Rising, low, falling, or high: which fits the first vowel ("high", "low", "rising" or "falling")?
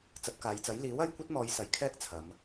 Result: low